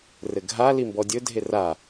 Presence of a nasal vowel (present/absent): absent